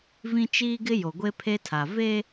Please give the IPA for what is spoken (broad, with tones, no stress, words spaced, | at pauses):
vĩ˦t͡ʃiː˦ɡɪ˦ jo˨ɡʷe˦pʰe˦tʰa˨ ve˦